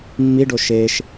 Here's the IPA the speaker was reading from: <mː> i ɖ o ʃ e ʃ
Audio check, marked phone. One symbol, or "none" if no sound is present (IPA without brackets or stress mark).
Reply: mː